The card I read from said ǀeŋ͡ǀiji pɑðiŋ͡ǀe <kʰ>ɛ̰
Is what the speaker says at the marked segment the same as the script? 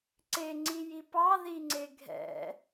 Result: no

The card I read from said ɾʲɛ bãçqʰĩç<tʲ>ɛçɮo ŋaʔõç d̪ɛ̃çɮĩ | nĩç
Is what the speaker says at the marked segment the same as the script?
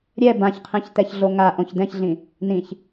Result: no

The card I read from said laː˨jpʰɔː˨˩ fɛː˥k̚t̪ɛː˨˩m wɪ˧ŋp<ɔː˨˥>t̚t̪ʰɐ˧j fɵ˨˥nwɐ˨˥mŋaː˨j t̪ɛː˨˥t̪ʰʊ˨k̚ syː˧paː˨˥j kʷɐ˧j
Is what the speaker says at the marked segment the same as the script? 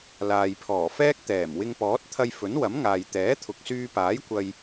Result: yes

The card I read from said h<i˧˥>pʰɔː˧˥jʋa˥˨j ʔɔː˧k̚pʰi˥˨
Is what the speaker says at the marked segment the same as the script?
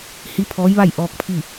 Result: yes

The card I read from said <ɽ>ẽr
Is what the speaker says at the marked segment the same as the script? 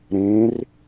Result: no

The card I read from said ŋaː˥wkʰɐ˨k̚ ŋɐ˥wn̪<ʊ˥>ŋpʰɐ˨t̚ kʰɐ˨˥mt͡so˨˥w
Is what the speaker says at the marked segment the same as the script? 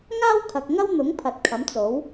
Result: no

